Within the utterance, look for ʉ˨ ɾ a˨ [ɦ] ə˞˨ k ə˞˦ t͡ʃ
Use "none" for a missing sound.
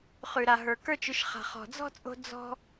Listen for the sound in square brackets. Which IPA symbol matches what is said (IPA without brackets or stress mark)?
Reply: ɦ